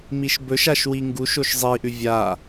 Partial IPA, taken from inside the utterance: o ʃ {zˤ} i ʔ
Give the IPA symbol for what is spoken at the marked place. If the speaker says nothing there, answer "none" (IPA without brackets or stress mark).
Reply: zˤ